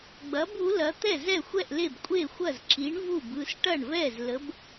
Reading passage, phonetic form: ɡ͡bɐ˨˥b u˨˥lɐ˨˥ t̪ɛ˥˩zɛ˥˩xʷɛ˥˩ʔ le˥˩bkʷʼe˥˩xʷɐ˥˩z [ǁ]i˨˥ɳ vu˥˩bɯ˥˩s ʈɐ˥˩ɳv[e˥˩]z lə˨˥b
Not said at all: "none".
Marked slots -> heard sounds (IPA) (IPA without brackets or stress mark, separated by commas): ǁ, ɛ˥˩